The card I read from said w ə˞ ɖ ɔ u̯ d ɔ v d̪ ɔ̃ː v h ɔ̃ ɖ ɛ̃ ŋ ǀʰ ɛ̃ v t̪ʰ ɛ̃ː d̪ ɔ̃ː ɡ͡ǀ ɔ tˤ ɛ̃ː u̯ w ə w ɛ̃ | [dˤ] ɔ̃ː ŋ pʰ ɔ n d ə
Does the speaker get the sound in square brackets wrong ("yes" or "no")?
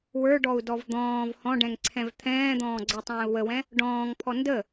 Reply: yes